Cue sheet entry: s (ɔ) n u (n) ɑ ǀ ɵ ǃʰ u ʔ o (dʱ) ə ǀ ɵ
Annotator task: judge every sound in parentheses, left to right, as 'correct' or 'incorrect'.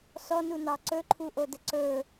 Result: correct, correct, incorrect

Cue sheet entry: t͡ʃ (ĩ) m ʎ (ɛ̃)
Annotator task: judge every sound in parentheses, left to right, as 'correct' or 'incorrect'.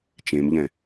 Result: incorrect, correct

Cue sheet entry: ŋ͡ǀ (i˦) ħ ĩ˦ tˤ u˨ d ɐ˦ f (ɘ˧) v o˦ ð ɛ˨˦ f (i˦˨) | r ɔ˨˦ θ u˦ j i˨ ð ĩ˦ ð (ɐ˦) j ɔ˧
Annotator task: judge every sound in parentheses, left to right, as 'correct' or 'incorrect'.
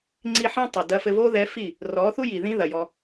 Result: correct, correct, correct, incorrect

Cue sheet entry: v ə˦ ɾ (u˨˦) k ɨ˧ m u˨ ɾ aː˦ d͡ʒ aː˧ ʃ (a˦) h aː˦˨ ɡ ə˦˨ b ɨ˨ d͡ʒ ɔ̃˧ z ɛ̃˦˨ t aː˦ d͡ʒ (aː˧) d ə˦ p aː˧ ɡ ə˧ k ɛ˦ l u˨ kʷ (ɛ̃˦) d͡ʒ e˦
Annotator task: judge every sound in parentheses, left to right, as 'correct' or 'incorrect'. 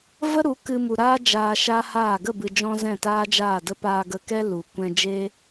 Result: correct, correct, incorrect, incorrect

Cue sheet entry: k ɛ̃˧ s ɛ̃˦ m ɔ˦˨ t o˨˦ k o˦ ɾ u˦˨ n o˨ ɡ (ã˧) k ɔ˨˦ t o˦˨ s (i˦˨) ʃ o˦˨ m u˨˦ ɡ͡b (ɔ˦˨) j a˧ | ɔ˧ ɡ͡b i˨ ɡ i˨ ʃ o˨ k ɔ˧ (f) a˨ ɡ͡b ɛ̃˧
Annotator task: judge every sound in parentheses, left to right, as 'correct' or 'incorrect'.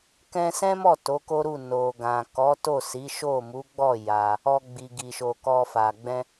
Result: incorrect, incorrect, correct, correct

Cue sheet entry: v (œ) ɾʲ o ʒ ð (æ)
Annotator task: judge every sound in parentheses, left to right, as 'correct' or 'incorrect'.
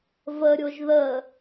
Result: incorrect, incorrect

